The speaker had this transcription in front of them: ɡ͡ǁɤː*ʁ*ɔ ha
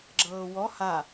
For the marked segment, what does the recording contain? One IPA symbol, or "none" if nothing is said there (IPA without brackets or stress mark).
w